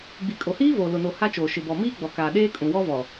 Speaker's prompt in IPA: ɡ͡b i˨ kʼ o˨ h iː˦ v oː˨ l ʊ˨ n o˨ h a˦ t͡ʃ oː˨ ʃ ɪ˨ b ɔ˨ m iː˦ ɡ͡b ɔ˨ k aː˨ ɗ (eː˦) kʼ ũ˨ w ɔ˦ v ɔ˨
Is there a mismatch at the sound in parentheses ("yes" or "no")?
no